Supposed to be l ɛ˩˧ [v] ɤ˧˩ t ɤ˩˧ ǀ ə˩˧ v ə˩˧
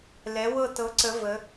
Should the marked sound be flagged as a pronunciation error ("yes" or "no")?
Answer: yes